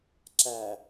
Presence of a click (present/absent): present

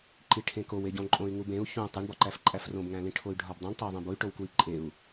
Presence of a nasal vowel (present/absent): present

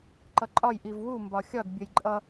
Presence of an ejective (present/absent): present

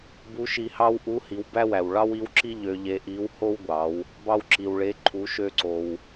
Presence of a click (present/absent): present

